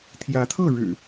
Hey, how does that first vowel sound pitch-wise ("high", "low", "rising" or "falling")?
rising